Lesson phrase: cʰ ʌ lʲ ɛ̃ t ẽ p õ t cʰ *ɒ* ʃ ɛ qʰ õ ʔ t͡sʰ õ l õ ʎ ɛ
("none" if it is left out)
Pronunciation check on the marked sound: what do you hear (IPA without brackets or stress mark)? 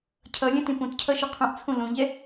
ʌ